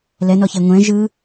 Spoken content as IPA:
l ɛ n ɔ ç e ŋʷ ɛ̃ ʒ ɯ

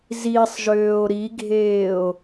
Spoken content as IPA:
z i sˤ ʒ øː o̯ ɾ i ɡʱ eː o̯

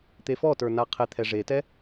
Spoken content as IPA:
t̪ e f ɔ t ə˞ n a qʰ e t̪ʰ ɛ ʐ e t ɛ

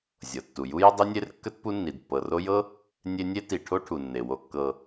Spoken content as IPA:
zʲ ɤ˩ tː u˩ j u˥ j ə˥ dˤ i˥ nʲ e˥ r kː ə˥ t p u˦ nː i˩ d pː ɤ˩ r o˦ j ɤ˥ | nʲ e˦ nʲ e˥ t i˨ ʈʰ o˥ ʈʰ u˩ nː e˩ w o˨ kː ɤ˨

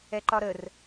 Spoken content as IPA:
ɛ ǃ ɒ ɾ ə r

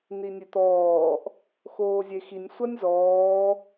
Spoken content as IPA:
n i nʲ e t̪ ɔː ʔ | x oː zʲ e x i nʲ sʷ ɐ nʲ z ɔː

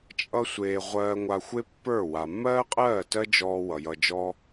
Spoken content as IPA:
t͡ʃʼ ʌ˦ sʷ eː˧ ʁʷ ɜː˧ ŋʷ a˧ xʷ e˦ pː ə˞˦˨ w a˨ mː ɜː˦ qʼ ɜː˦˨ t ɜ˦ d͡ʒ ɔː˧ w ʌ˨ j ʌ˧ d͡ʒ ɔː˦

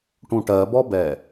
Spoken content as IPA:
ʈ ũ ʈ ɜ b ɔ b ɛ

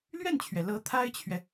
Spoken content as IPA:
l ɥ ɛ˥˩ n t͡ɕʰ ɥ ɛ˩ l ɤ˧˥ t̪ʰ a˥ ɪ̯ t͡ɕʰ ɥ ɛ˨

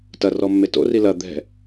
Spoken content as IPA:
t ɐ r ɔ mː e t o̰ r i l ɐ d̪ ɛ̤

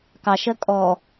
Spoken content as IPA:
k ɑ ʃ ɜ kʼ ɔ

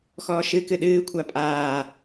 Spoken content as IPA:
x ɔː ʃ ɨ k ɨ ɗ ɨː kʷʰ a pʼ aː

